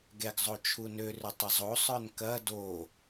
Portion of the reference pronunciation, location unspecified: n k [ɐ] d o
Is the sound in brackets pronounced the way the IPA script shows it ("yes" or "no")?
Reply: yes